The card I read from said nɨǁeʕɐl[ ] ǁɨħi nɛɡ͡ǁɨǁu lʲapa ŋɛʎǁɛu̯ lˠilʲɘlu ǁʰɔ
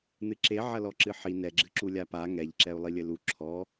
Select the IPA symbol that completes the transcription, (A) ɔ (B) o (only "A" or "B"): A